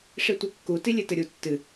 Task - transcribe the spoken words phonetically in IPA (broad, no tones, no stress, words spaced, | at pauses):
ʂitʷɛkːu tilʲetɘɾʲu tːɨ